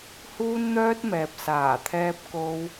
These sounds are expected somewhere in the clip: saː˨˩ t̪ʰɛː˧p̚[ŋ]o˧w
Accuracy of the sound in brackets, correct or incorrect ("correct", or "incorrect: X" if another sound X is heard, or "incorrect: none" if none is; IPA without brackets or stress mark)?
incorrect: k